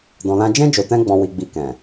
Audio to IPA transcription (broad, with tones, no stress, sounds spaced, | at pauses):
d ɔ̃˧ l ã˦ d͡ʒ ɛ̃˦ d͡ʒ o˧ t ɛ̃˦ ɡ͡b ɔ̃˧ w i˨ ɡ͡b i˨ k ɛ̃˨